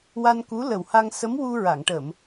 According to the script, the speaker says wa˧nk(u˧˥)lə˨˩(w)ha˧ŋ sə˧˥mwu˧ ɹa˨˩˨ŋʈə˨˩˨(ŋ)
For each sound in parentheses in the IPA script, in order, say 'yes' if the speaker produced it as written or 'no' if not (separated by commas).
yes, yes, no